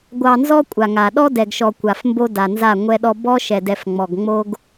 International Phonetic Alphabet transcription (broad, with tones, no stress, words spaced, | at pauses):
ɡʷɑ˨nzɔ˦ kʷʼa˨ŋa˨ ɗɔ˦dɛ˨ɡʃɔ˨ kʷa˨fmbo˦ da˨nza˦˨ ŋʷɛ˦ɗɔ˦ bɔ˦ʃɛ˨dɛ˨f ŋ͡mɔ˨ɡŋ͡mo˦ɡ